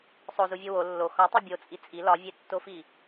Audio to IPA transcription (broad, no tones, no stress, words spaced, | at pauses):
sˤozuvʲo wo lːo xɒtˤi bʲot͡sʼi t͡sʼi lɒvʲetːofi